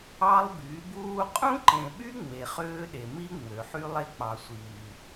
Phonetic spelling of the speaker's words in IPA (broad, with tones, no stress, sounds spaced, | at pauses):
ɑ˦ lˠ b y˨˦ b uː˦ qʼ ũ˦ ǃ ẽ˨ ɓ y˦ ŋ͡m e˨ χ øː˦ ɗ e˨ m i˦ ŋ͡m ø˨ ħ y˦ lˠ e˦ k͡p ɑ˨ sʷ iː˨